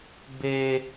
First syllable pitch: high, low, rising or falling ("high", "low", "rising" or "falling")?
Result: high